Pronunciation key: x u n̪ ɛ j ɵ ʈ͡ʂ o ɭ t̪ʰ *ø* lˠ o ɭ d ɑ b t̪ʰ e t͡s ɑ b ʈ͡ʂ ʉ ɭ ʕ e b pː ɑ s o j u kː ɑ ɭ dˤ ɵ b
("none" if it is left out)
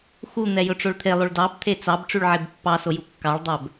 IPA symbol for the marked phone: e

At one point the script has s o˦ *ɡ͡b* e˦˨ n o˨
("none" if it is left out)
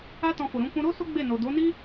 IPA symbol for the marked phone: ɡ͡b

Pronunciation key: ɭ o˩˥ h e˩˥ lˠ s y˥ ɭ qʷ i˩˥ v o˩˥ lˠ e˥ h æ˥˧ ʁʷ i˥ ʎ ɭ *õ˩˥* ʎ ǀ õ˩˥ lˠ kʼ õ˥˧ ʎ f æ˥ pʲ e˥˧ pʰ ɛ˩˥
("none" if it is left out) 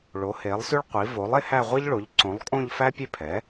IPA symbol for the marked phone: o˩˥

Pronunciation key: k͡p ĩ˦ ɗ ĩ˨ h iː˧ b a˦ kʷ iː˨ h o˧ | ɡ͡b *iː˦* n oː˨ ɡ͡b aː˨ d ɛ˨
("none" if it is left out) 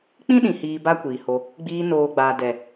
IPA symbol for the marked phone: iː˧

